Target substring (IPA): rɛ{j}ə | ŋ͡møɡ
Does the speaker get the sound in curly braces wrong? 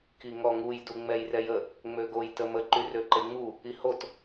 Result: no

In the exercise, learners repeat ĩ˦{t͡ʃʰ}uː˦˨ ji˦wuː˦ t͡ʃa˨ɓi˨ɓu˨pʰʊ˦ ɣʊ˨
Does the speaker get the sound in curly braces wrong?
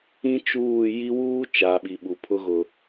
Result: yes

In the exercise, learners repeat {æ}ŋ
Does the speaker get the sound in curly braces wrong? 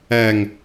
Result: no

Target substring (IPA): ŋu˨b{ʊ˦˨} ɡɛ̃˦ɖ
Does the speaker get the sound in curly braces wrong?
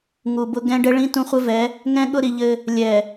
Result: yes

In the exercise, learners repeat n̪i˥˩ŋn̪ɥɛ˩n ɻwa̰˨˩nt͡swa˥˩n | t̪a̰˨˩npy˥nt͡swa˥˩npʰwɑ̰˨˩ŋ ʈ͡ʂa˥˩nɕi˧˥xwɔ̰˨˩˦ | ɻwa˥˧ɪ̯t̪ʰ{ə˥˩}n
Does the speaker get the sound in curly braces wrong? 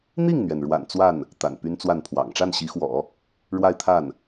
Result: yes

